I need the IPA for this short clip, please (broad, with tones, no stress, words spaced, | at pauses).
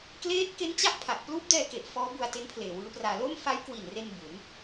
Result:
kleː˦˥t̚ ke˦˥nt͡ɕa˦˥ʔ pʰa˨˩ʔ pluː˦˥p̚dɛː˧ke˨˩ʔ fɔː˦˥bu˧a̯ te˦˥n pʰleː˨˩wɯː˦˥praː˧ lo˥˩m fa˦˥j kwi˨˩nre˧n bu˩˦n